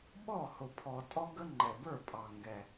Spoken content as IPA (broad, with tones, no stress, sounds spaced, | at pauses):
ɓ ɔ˥˩ h ʊ˨˩ pʰ ɔ˨˩ tʼ ɔ˦ ɡ ə˦ ŋ͡ǃ ɛ˨˩ b ə˞˥˩ pʼ ɑ˨˩ ŋ ɡ ɛ˨˩